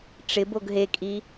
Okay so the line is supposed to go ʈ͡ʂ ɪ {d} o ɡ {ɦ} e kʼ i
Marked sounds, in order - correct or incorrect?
incorrect: b, correct

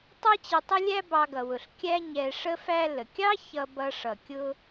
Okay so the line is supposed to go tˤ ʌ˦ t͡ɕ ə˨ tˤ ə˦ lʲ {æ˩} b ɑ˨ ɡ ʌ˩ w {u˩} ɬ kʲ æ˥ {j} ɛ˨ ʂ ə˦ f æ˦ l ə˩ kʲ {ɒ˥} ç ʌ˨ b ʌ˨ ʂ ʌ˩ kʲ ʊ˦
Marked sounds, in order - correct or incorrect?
incorrect: æ˦, incorrect: ʊ˩, incorrect: ɲ, incorrect: ɑ˥

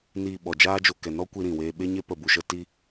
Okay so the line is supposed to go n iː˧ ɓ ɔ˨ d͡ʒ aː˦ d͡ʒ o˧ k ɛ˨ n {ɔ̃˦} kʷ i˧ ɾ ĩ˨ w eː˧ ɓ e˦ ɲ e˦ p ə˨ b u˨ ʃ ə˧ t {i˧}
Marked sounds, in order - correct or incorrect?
incorrect: ɔ˦, correct

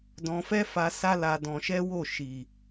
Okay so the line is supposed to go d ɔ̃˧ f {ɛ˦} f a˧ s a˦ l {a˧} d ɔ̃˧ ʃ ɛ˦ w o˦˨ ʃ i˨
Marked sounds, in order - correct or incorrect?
correct, correct

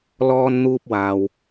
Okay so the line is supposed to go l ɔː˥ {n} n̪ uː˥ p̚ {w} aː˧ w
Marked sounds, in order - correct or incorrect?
correct, correct

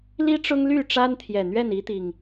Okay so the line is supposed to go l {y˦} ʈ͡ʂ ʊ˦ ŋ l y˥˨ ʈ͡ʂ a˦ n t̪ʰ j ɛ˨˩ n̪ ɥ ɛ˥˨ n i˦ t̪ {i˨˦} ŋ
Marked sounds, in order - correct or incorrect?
incorrect: i˦, incorrect: i˨˩

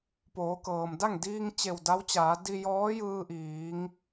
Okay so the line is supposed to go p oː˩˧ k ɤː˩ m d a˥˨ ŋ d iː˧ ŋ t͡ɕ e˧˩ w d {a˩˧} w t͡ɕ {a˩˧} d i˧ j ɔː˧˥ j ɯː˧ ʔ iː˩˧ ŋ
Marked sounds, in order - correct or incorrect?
incorrect: a˧˥, incorrect: aː˩˧

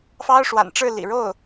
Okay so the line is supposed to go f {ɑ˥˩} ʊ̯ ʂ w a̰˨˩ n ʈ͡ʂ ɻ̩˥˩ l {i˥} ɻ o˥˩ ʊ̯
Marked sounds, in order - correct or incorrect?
incorrect: ɑ˥, incorrect: ḭ˨˩

